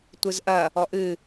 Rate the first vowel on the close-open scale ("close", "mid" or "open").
close